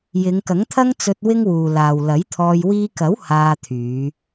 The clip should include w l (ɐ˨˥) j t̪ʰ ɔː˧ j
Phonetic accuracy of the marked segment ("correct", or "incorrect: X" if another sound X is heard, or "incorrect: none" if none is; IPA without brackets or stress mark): correct